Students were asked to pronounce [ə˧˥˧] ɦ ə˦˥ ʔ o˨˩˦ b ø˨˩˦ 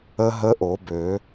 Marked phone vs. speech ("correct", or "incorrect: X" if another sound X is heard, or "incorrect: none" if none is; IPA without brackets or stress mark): incorrect: ə˦˥